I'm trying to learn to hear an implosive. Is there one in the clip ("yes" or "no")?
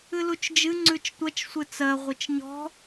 no